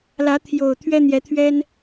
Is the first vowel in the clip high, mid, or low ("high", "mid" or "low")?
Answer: low